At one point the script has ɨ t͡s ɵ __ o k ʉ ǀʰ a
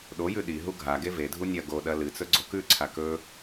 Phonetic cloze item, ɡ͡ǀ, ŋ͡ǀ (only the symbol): ɡ͡ǀ